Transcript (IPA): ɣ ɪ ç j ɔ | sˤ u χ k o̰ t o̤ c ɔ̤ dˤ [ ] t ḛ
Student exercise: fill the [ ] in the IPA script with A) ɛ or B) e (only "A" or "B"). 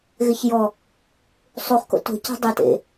A